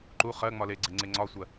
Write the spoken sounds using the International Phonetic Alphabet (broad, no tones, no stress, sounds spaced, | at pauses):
ǃ u χ ɜ ŋ͡m ɒ l e ɡ͡ǀ e ŋ͡ǀ e ŋ͡ǀ ɒ sʷ ɜ